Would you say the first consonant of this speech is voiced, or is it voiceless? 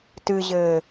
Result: voiceless